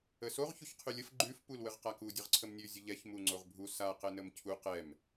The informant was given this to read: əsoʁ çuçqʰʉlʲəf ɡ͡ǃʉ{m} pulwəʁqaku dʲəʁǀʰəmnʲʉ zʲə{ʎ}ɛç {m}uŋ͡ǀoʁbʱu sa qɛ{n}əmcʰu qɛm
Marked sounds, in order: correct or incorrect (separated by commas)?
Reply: incorrect, correct, correct, correct